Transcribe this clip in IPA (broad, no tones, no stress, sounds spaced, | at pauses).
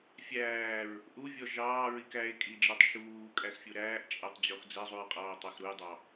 fʲ æː ɹ | ʔ u vʲ ɔ ʒ ɑː ɹ i k æ e̯ kʼ i d͡ʒ ɛ tˤ ʃ uː kʼ æ x fʲ u ɾ æː ʔ t͡ʃʼ æ tˤ d͡ʑ ɔ x d͡z ɛ zˤ u ɹ qʼ ɑː o̯ tˤ æ x ɾ u j dˤ ɑ